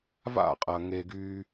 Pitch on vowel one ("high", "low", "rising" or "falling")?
falling